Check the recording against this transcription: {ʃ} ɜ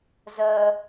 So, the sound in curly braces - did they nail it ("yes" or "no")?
no